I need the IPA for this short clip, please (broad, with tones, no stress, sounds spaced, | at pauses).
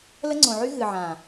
l ə˦ ŋ͡ǀ õ˨ ʕ y˦ ɣ ɨ˨ ʕ ã˨